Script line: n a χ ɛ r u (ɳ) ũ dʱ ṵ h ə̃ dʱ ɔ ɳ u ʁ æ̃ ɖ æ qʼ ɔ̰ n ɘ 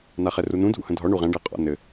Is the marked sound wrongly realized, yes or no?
yes